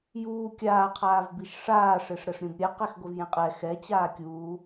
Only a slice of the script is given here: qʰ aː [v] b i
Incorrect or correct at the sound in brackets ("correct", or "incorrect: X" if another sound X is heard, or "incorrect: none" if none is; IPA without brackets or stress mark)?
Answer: correct